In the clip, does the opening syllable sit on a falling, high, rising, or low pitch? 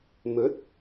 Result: rising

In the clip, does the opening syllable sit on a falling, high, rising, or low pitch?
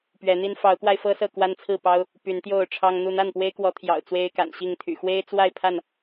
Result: rising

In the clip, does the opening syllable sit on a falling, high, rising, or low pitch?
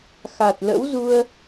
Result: low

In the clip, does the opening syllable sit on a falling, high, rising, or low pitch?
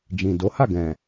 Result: low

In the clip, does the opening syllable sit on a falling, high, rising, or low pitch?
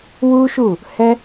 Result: high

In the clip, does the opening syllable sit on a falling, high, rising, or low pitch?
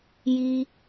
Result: low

